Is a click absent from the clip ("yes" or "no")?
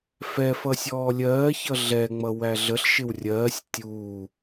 yes